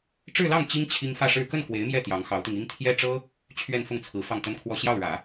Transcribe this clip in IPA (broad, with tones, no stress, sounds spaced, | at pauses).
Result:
ʈ͡ʂ ɻ̩˥˧ l ɑ˥˩ ŋ t͡ɕ i˥ ŋ t͡ɕʰ i˥ ŋ f ä˥˧ ʂ ɻ̩˥˧ k ə˥˩ n k w e˧˥ ɪ̯ m j ɛ˥˩ t̪ j ɑ˧˥ ŋ x ɑ˧˥ ʊ̯ t̪ i˧ ŋ i˥ ŋ t̪ʰ j ɛ˥ ʈ͡ʂ ɤ˥ | t͡ɕʰ ɥ ɛ˥˧ n f ʊ˥˩ ŋ t͡sʰ ɹ̩˧˥ f ɑ˥˩ ŋ t̪ ə˥ n kʰ w ɔ˥˧ ɕ j ɑ˥˩ ʊ̯ ɻ ä˨˩˦